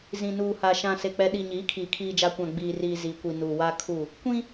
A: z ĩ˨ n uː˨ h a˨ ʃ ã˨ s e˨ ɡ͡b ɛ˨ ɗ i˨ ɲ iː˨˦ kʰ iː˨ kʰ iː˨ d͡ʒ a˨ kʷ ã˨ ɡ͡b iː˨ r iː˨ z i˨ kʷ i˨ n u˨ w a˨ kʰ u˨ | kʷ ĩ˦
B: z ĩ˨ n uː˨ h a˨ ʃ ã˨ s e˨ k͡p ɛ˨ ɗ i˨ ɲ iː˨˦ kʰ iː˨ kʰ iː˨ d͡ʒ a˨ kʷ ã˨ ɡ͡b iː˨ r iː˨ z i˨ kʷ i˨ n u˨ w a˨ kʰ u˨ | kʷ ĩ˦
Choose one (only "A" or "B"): B